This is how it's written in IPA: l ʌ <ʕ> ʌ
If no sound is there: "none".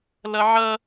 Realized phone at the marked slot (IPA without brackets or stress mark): ʕ